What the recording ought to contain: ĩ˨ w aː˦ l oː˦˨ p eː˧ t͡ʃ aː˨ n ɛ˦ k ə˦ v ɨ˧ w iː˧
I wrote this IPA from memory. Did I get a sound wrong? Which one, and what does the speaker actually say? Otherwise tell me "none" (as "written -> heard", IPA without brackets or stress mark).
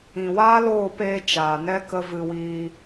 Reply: none